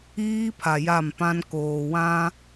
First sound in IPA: iː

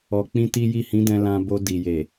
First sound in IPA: ɔ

